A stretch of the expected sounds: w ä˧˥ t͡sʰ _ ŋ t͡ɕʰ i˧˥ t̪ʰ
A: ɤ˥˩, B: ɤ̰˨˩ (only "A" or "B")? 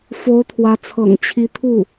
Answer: B